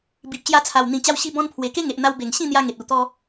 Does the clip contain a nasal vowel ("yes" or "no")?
yes